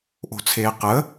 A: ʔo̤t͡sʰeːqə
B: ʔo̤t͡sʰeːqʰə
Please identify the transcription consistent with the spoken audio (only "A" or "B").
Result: A